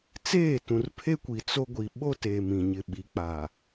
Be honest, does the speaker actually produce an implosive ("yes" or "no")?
yes